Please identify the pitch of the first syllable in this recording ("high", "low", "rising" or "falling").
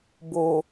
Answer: low